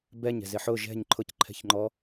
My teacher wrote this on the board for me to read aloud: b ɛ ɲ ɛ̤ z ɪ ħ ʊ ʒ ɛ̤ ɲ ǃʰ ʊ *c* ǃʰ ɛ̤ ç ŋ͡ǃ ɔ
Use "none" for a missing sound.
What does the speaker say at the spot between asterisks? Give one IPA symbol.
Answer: c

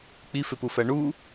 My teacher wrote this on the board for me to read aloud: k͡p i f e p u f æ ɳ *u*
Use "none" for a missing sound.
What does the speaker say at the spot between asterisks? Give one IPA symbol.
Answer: u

